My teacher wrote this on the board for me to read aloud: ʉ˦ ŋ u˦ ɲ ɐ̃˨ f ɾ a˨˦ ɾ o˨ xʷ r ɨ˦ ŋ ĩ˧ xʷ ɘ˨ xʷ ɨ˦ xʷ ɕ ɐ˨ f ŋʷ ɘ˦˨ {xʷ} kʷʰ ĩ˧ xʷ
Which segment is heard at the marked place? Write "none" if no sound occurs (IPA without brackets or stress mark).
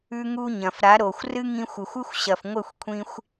xʷ